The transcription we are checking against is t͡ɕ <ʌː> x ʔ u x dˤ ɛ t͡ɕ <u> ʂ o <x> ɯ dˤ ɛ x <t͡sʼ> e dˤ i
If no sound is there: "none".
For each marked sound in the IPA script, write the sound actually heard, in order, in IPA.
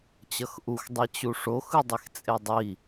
ʌ, u, x, t͡sʼ

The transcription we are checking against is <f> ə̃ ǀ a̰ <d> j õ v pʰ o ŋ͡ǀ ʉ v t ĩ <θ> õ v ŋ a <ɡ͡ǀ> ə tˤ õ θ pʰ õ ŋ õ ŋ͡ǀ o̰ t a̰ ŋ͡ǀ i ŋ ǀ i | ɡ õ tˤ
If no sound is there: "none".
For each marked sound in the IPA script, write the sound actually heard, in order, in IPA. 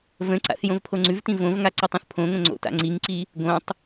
v, θ, v, ǀ

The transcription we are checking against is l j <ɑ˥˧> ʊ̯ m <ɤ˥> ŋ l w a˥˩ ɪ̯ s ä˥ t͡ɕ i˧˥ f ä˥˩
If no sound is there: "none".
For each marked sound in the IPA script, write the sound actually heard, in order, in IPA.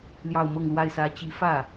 ɑ˥˧, ɤ˥˧

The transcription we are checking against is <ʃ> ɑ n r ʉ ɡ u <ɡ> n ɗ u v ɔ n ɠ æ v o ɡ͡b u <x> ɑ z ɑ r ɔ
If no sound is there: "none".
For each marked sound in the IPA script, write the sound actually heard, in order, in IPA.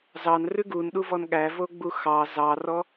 z, none, x

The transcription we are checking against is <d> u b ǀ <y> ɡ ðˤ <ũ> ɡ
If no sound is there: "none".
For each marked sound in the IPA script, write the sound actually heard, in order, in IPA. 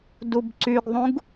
d, y, ũ

